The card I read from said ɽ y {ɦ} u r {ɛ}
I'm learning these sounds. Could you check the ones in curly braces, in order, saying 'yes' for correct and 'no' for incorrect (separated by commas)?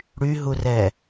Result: yes, yes